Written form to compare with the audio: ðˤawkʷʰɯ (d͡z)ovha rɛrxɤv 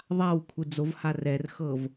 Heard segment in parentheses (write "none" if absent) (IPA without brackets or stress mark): d͡z